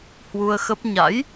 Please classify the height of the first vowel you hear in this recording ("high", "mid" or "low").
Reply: high